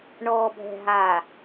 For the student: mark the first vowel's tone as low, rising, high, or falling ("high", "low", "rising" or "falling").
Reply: low